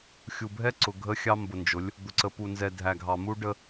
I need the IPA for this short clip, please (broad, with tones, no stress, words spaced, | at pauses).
xʲu˨bʱɛ˦ǀʊ˨ ɡʱə˦xʲɑ˦mbʊ˨nd͡ʒʊ˨˦lʲ | d̪ʊ˨ǀə˨pu˨nzɛ˨ dʱæ˨ɡʱɑ˨mu˦ɖə˦